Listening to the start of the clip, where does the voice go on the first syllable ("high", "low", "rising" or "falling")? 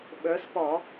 rising